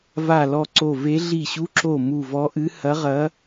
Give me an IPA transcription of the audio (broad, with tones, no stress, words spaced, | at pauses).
va˧˩lɔ˧˩ ǀo˧˩ve˧˥ ɮi˧˩ɕu˧˥ǁo˧˩ mu˧˩vɔ˧˥ʔɨ˧˥ hɐ˧˥ʁɐ˧˥